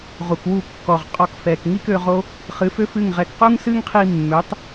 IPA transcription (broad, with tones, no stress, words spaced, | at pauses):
ʁu˨kwu˦˨ kːɔ˨ʁ qʼɔ˧kfɛ˨k ŋi˦kø˧ʁo˦ | χɨ˨˦fø˦fɨ˦˨ŋʁɛ˧k qu˦ŋsɨ˦ŋqʰi˧mːø˨˦tˤ